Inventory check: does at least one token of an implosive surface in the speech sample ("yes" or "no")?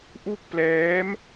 no